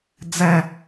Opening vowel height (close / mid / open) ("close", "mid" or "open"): open